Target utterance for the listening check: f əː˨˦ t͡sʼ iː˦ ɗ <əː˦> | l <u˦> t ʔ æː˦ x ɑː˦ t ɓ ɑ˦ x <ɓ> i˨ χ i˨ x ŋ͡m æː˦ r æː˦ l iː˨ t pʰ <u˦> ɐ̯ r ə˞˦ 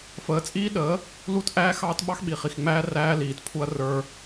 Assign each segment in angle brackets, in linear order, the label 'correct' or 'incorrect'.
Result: incorrect: əː˨˦, correct, correct, correct

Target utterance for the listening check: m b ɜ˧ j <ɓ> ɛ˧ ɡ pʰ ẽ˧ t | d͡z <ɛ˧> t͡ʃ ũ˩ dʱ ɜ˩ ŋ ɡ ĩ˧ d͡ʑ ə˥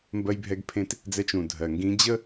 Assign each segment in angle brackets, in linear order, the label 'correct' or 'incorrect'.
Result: incorrect: bʱ, correct

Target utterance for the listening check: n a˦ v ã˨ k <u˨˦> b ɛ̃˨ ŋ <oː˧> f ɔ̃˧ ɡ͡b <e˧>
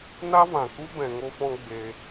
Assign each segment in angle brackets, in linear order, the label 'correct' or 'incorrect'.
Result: incorrect: u˦, incorrect: o˧, correct

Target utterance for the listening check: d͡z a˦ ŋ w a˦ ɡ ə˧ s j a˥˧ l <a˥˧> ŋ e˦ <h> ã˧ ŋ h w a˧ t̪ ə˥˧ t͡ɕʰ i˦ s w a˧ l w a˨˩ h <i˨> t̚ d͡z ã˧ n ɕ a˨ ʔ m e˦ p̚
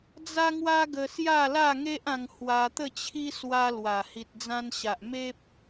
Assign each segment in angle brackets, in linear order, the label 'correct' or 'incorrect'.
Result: correct, incorrect: ʔ, correct

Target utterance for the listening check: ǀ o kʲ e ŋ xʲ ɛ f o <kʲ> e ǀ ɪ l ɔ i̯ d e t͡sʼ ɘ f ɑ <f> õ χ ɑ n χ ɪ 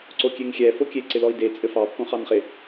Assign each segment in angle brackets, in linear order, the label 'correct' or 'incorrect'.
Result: correct, incorrect: pː

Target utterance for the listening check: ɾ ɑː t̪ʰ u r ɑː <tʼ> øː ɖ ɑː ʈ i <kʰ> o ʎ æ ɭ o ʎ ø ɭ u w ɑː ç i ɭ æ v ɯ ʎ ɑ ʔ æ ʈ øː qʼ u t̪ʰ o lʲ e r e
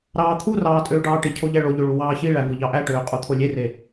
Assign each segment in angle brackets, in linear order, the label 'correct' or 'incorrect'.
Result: correct, incorrect: cʰ

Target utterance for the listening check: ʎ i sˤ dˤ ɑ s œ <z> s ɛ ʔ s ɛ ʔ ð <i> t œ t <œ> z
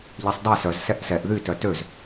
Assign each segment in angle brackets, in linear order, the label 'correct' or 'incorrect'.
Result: correct, incorrect: y, incorrect: ø

